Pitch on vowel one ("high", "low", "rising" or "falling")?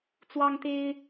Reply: high